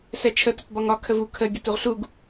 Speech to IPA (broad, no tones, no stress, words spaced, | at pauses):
sɛt͡ʃʰə tətbɒŋɒ kʰəvu kʰə ɡʲətuʁɬuɡ